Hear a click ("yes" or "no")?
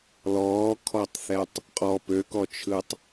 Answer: no